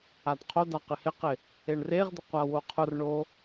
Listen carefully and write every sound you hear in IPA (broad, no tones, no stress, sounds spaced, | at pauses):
a d qʰ o d a q ɪ h ɪ q ɪ | e ɳ r e ʁ d̪ ɪ qʷ a w o qʰ ʊ r ɳ o